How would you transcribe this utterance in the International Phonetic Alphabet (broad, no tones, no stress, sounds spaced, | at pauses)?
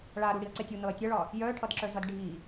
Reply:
ɭ a ɾ u ɽ i ɐ̯ ǀ ɛ tʲ u n ɤ ɐ̯ tʲ ʌ ɭ ɒ | j œ ʈʰ ʌ d ǁ œ z ʌ d ɖʱ i